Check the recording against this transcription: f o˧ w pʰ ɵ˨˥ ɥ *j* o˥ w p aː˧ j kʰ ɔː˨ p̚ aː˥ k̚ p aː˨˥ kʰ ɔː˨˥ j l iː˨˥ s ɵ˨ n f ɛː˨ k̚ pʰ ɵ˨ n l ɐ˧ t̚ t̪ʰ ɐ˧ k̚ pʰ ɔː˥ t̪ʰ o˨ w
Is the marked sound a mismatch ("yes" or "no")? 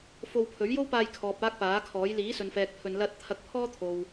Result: no